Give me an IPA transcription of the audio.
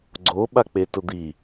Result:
ɡ͡ǀ o ɓ a k͡p e t ʊ d̪ i

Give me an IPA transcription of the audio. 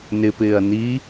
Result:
n ɪ p ɪː ɐ̯ n i

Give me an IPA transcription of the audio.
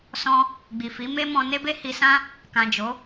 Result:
s ɔ̃˦ | ɡ͡b i˨ f i˨˦ m e˦ m ɔ̃˧ n e˦ b e˦ h i˧ s ã˦ | k ã˨ d͡ʒ o˨˦

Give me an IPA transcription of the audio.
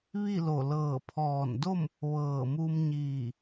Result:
ʋ i˥˨ l o˧˩ l ɤː˧˩ pʰ ɔː˧˩ n d o˥˨ m | ʋ ɤː˧˩ m u˧ m ɲ iː˧˩

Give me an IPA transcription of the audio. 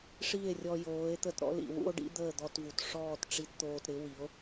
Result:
ʂ i˦˨ e̯ rʲ ɔ˧ j oː˨˦ e̯ t̪ ə˧ t ɾ ɔ̰˦ l ḭ˨ w ṵ˦ o̯ ɖ ḭ˦ d̪ əː˦˨ d̪ ɔ˧ t v u˨ t ʂ ɔː˦˨ t ʈ͡ʂ i˧ t t̪ oː˧ t ɾ ɪ˨˦ w i˨˦ o̯

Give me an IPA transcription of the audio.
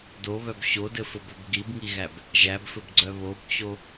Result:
d o β œ b ɕ o d ɘ f ɘ b œ b ɡ i b ŋ i ɣ æ b | ʒ æ b f ɘ b ɡ͡ǀ œ β o b t͡ɕ o

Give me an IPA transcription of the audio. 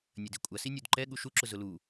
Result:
nʲ ɐ d i kʷʼ ɐ s i nʲ u d ǃ ɛ ɠ u ʃ u ǁ ʊ z ʊ l u

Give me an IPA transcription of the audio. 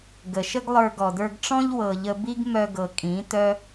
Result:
ɡ ə˨ ʃ ə˦ ɡ lˠ ə˞˧ ɡ ɔ˨ d ə˞˧ ɡ ʈ͡ʂ ɔ̃˦ ʎ w ɤ˨ ʎ ə˧ b i˦ ɡ m œ˧ ɡ ɤ˨ kʼ ĩ˨˦ t œ˦

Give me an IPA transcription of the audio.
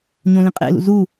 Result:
ɲ õ l ĩ qʼ ḛ l ṵ z u

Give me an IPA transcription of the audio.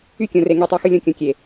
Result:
y˦ kʲ õ˨ r e˨ ŋ i˨ tˤ e˨ x ɯ˨ lʲ õ˨ kʲ õ˨ kʲ e˨

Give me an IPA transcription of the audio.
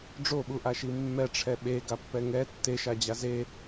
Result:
ɖ͡ʐ o ɓ u ʔ a ʃ i mː ɛ ʈ͡ʂʰ ɛ ɓ e ɡ a pː ɛ ŋ ɛ tː e ʃ a d͡ʑ a z e

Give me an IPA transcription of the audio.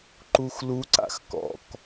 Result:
ǃ u x l u ǀ a̰ x k ɔ̰ k

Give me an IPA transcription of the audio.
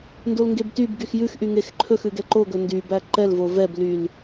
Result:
n d o l ŋ ɡ e b t y b ɡ y x j ʉ x ʔ y ŋ e x ǃʰ ɵ x ʉ ɡ ɛ ǃ o ɡ ɵ n d y b æ ǃ ɛ l v o v ɛ b l y l

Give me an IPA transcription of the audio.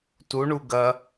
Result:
t u ɳ u ɡ ɐ

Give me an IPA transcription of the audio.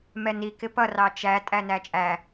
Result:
m ɛ n i k ɪ p ʌ r ɑ t͡ʃ æ tʼ æ n æ t͡ʃʼ æ

